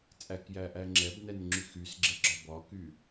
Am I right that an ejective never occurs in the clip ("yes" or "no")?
no